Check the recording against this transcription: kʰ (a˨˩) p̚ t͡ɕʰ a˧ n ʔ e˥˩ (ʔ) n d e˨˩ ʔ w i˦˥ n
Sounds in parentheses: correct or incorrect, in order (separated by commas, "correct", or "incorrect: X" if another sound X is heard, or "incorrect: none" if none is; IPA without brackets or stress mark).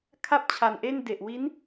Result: incorrect: a˥˩, incorrect: none